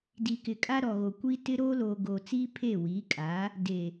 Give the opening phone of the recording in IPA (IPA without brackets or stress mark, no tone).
d